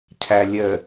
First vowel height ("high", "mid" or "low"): low